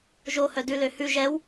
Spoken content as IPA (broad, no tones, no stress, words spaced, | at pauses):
ʒohœ dʉlø hʉ ʒɛw